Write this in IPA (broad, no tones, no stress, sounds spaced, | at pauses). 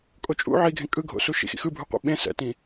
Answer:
kʼ o t͡ʃʼ ṵ ʕ i ɡʱ ẽ kʼ ɯ ɡʱ o̰ s u ʃ ḭ x ḭ x ɯ bʱ u qʷ ḭ ɓ ẽ s ɛ̰ t ĩ